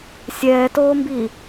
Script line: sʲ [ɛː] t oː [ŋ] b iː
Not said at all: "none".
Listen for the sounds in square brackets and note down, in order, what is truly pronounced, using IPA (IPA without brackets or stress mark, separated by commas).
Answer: ɛː, m